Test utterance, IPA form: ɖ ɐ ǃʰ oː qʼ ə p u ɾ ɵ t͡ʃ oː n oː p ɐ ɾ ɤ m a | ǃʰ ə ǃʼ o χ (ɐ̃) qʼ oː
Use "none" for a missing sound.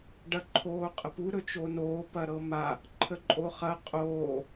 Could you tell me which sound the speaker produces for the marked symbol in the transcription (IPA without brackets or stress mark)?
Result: ɐ